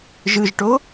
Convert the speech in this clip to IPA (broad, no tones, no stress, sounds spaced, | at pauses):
ʒ ɯ ʒ ʈ o